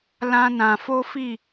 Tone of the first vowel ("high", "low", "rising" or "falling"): high